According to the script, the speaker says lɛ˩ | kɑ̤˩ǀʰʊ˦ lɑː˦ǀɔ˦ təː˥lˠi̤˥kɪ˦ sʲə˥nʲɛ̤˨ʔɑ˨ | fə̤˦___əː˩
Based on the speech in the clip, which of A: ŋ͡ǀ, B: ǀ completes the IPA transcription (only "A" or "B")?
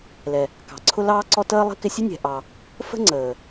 A